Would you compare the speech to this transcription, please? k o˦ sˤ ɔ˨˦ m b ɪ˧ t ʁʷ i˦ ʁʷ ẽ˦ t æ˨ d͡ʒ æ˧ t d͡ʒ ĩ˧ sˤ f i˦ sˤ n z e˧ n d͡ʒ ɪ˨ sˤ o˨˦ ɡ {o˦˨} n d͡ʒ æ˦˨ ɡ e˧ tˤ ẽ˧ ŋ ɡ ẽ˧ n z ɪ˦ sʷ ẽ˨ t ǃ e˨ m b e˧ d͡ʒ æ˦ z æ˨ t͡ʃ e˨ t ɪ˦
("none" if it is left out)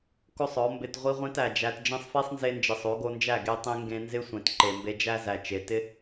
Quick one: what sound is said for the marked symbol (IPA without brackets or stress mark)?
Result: o˧